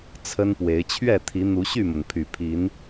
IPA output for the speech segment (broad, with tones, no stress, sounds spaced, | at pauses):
t͡sʰ ə˦ n p w e˨˦ ɪ̯ t͡ɕʰ ɥ ɛ˥˨ t̪ʰ i˨˦ n̪ u˨˦ ɕ y˥˨ m ə˩ n pʰ y˨˩ pʰ i˨˦ n